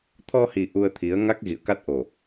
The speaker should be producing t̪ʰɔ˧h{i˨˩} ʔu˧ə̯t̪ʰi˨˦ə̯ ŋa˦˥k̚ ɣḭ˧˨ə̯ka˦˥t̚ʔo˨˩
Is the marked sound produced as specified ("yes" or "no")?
yes